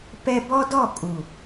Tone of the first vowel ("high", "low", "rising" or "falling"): high